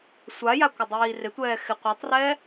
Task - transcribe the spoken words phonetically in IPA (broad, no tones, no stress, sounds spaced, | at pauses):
sʷ a j a kʷ ɪ dˤ iː r ɪ tʷ ɛː x ɪ qʷ e tˤ r ɛ